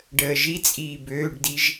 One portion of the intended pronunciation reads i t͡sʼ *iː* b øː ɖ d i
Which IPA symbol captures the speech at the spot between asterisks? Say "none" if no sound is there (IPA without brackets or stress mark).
iː